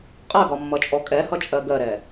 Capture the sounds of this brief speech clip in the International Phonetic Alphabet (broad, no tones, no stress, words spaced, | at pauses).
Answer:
qʼɜɡɒmːʌt͡ʃʼɔ kʼɛhʌt͡ʃʼɜ ɡɜɾɛ